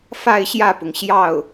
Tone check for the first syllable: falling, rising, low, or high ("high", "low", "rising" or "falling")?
falling